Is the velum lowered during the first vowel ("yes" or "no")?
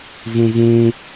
yes